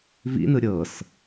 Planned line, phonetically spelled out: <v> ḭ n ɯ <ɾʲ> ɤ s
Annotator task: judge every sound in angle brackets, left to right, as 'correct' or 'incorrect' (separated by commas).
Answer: correct, correct